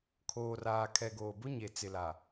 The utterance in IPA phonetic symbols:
kʰ oː˨ r aː˨ kʰ ɛ˨ ɡ oː˨ b ʊ˦ ɲ e˨ t͡s ɪ˨ l a˨

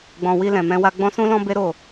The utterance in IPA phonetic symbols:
ɡ͡b ɔ̃˧ w i˧ l ɛ̃˨ m ɛ̃˧ w a˧ ɡ͡b ɔ̃˦ s ũ˦ l ɔ̃˦ b e˦ ɾ o˦˨

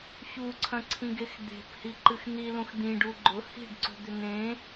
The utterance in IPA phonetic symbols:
ç u ǀʰ ɐ̃ ǀʰ ĩ ɡ e x d̪ e̤ p h i ǃ ɨ x n̪ i l ũ x d̪ ĩ ɖ u ɡ͡ǃ ʊ h i̤ ɖ ǀ o̤ d̪ ʏ n̪ ẽ

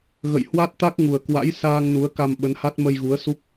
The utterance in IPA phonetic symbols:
ɣ ə̰˧˨ j h w a˦˥ t̚ t̪ a˦˥ k̚ ŋ u˨˩ ə̯ k w a̰˧˥ j s aː˧ ŋ n u˨˦ ə̯ k a˧ m ɓ ə˨˦ n h a˦˥ t̚ m ə˧ j ɣ u˨˦ ə̯ s u˦˥ k̚

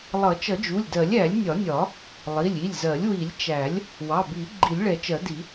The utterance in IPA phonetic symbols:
lˠ ʌ˨˩˦ t͡ʃ ʌ˨˩˦ d͡ʒ u˩˧˩ lʲ d ɜ˨˩˦ lʲ æ˨˩˦ lʲ nʲ ɒ˨˩˦ nʲ ɒ˨˩˦ | lˠ i˩˧˩ lʲ i˩˧˩ lʲ z ɜ˨˩˦ lʲ w i˨˩˦ lʲ t͡ʃ æ˨˩˦ lʲ | w ɑ˩˧˩ b i˨˩˦ ɡ͡ǃ i˨˩˦ lʲ ɭ ɛ˨˩˦ t͡ʃ ɜ˨˩˦ d i˨˩˦

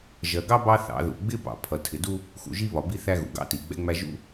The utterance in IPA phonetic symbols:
ʒ ɜ˨ ɡ ɑ˦ b ɑ˦ θ ɑ̰˨˦ ð ṵ˨ ɡ͡b ɪ˦ b ɑ̰˨ pʰ ʌ˨ tʰ ɪ˨ d u˦ | x ṵ˨ ʒ i˦ β ɒ˨ b i˦ θ æ˦ ɣ ṵ˨ ɡ ɑ̰˦ t i˨ ɡ͡b ɛ̰˦ ŋ͡m æ˦ ʒ ṵ˦

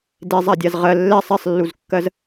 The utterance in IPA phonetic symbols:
d e zˤ a dʲ a z ʁ ɜ lː ɛ sˤ ɛ sˤ lː u z kː ɜ z

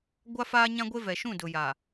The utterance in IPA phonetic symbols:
ɡʷ a˦ f aː˦ ɲ ã˦ ɡʷ e˦ v ɛ˨ ʃ ũ˦˨ d ʊ˨ j a˨

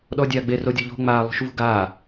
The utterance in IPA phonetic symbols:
ɗ ɔ dʲ aː ɡ͡b e r o dʲ ɔ ʎ o̤ ŋ͡m aː lˠ ṳ ʃ v ṳ ɡ aː

